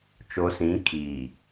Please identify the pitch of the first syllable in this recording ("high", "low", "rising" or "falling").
low